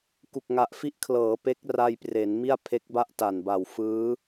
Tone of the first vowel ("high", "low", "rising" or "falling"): low